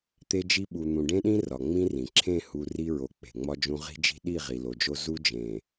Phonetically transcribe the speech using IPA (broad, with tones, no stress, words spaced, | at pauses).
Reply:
t̪e˦d͡ʒi˦ ɓu˨n̪ũ˨ɖẽ˦ɗĩ˦ rɒ˨ŋ͡mĩ˦rĩ˨ ǁʰẽ˦˨hu˨ ri˦ɹo˨ k͡pe̤˨ŋ͡mɒ˦d͡ʒũ˦ ʁi̤˦d͡ʒi̤˦ ɗi˦˨ ʁi˨lo˨d͡ʒo˦ zu˦d͡ʒẽ˨